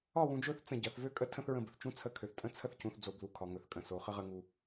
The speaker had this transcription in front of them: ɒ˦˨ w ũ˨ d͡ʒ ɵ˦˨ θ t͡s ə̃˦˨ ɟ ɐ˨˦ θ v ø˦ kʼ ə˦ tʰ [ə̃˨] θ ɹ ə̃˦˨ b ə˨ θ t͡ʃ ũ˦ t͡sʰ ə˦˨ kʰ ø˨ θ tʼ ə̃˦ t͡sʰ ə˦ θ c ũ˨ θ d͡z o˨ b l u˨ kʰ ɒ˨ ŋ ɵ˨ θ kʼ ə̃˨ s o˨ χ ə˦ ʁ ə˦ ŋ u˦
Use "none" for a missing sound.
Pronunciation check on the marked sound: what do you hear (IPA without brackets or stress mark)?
ə̃˦